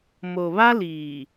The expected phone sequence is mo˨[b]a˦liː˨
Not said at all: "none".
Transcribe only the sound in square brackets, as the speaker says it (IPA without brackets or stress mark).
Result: β